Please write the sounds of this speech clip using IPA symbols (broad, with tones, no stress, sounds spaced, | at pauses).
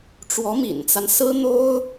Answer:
ʈ͡ʂ w ɔ˧˥ m ḭ˨˩ n t͡s a˦ n s ɹ̩˥ n̪ o˥ ʊ̯